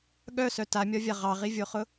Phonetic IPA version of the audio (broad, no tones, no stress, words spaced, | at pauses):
ɠœsœ tamʲɒvʲa ʁɑʁivʲoχʊ